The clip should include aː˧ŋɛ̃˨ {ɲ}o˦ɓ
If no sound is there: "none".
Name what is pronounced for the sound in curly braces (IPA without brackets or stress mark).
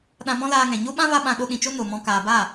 ɲ